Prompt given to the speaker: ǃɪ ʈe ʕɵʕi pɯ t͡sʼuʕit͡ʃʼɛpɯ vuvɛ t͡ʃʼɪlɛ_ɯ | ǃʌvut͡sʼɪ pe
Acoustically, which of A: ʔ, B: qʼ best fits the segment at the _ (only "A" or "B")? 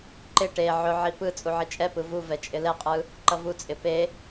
B